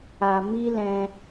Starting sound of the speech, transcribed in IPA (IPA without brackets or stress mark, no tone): a